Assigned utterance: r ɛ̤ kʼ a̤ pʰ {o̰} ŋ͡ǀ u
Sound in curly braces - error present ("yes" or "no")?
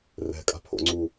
no